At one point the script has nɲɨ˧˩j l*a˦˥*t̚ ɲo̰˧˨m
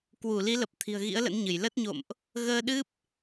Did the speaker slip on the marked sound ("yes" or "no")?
yes